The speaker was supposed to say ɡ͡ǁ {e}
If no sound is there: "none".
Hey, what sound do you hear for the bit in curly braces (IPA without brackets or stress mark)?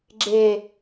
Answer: e